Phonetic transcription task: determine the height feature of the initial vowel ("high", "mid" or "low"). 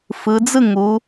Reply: high